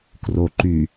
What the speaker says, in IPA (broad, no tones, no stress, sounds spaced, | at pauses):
k r o ǃ y